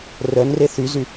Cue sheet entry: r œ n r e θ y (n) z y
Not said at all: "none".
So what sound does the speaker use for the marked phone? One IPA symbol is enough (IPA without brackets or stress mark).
none